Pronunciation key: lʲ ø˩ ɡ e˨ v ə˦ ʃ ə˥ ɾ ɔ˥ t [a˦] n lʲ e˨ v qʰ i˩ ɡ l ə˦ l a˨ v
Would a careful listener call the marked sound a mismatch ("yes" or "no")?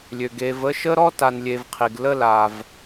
yes